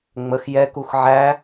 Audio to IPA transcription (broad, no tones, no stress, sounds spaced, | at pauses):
ŋ͡m ə x j ɛ k u x ʕ æ